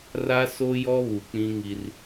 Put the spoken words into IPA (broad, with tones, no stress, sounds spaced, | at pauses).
r a˦ s o˦ j ɔ˦ β u˨ k͡p ĩ˦ ŋ i˦ r